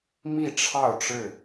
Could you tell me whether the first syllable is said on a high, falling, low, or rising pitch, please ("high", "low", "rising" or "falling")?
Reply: falling